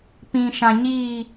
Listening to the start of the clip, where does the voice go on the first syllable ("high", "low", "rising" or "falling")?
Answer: low